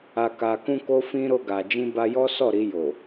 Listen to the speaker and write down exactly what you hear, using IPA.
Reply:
a˨ k a˨ k ũ˧ k o˧ f ĩ˧ ɾ o˧ ɡ a˨ d͡ʒ ĩ˧ b a˧ j ɔ˦ s ɔ˦˨ ɾ i˧ j o˨

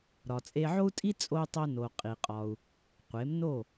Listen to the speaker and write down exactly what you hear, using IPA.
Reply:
ɾ ɒ˩ t͡sʼ e˧ ʕ o˥ u̯ tʼ i˥ t͡sʼ o˧ u̯ tˤ o˧ n o˩ qʼ i˩ qʼ ɒ˩ u̯ | qʷ e˩˥ m n o˥˩

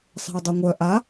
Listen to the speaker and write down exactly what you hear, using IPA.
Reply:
sˤ ɛ̤ u̯ dˤ u ŋʷ œ ʔ a

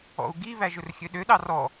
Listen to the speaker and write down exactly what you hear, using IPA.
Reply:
ɔ̰ u̯ ɡ i β æ ʒ ɵ r xʲ ø ɗ ø ɗ ɑ r ɔ

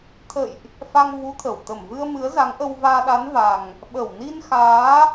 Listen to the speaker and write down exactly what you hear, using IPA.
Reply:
t̪ʰ ə̰˧˨ j ʔ | f a˧ ŋ v u˨˦ t̪ʰ ə˧˩ w t̪ ə˧˩ m v ɨ˧ ə̯ m ɨ˨˦ ə̯ z a˨˦ ŋ ʔ ə˧ w v aː˧ ɗ a˨˦ n v a˨˩ ŋ | ɓ ə˧˩ w n i˧ n x aː˨˦

